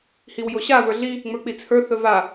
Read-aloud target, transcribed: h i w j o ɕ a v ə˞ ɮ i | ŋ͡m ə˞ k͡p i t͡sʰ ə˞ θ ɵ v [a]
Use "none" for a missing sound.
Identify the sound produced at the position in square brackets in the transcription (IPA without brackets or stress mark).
a